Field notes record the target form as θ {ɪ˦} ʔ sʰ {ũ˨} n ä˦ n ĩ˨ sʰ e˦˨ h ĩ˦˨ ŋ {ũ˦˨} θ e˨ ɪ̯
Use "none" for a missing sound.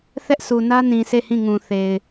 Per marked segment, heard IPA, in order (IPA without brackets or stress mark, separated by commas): ɛ˦, u˨, ũ˨